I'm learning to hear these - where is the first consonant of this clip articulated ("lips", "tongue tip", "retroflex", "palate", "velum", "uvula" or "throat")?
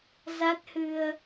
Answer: tongue tip